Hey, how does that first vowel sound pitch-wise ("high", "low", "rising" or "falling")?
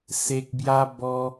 low